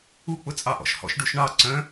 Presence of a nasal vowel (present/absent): present